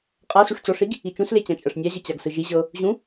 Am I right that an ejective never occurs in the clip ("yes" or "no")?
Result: no